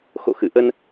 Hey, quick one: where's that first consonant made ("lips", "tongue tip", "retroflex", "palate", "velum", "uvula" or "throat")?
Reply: velum